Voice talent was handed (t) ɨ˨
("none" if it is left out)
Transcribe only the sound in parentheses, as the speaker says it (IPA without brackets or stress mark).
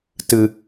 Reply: t